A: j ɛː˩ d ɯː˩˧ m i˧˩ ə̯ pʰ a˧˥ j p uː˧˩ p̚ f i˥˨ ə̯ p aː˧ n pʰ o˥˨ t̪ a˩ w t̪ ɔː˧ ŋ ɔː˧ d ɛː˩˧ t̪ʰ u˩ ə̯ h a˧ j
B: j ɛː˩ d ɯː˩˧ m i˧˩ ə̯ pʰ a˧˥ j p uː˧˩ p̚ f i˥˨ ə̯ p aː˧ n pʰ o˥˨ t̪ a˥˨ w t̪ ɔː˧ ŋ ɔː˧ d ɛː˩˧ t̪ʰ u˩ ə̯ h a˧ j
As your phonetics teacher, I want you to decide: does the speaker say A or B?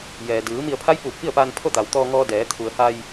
A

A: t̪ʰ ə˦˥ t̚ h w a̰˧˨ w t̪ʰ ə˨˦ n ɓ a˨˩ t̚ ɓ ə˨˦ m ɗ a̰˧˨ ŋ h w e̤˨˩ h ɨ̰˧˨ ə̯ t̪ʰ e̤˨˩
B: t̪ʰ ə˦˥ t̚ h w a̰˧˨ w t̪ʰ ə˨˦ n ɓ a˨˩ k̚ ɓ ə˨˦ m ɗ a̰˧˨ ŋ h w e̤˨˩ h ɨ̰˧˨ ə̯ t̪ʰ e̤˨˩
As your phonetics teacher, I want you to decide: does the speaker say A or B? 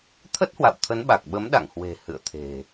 B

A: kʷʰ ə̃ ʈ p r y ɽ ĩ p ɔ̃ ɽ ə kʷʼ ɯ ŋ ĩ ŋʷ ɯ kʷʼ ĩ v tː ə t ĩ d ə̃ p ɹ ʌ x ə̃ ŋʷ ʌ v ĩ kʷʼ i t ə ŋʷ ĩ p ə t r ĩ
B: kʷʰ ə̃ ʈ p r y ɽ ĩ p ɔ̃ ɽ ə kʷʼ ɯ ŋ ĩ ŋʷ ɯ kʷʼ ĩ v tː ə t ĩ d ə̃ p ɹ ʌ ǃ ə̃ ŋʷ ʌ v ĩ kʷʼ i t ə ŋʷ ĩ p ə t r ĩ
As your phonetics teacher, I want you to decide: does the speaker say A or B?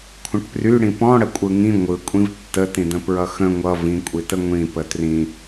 A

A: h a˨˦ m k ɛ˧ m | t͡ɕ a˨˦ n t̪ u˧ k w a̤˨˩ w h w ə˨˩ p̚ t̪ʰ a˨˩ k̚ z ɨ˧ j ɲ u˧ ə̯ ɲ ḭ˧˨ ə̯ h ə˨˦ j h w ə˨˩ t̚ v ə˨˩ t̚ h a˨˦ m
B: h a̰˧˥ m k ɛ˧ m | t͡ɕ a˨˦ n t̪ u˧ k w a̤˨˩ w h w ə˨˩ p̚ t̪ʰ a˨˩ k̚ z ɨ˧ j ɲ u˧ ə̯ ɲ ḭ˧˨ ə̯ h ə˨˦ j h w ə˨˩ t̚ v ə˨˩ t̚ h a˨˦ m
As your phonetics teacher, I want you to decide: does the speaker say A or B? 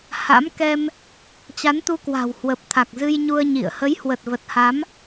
B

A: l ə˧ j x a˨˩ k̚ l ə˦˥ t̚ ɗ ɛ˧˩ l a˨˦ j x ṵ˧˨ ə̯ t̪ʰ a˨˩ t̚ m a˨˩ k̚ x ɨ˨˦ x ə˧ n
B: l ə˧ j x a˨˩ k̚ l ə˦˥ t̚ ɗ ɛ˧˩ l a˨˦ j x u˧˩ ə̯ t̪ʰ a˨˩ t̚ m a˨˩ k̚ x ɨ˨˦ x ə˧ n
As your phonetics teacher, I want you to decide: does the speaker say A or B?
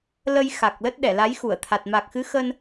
B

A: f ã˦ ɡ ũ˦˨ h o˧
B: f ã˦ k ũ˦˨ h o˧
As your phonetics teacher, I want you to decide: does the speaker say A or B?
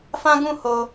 A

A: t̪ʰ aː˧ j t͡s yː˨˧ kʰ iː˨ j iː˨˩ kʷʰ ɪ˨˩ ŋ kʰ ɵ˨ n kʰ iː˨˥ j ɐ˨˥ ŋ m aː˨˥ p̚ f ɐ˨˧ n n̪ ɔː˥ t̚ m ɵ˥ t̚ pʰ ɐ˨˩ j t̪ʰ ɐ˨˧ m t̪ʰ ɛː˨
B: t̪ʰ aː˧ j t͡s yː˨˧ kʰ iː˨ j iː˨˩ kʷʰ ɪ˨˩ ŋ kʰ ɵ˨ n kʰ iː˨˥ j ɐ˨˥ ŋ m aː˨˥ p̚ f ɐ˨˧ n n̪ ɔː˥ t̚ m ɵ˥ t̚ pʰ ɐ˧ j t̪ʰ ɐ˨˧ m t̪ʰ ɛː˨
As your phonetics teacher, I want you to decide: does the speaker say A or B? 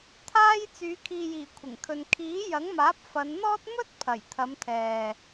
A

